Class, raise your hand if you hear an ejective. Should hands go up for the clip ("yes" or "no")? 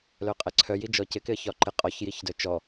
yes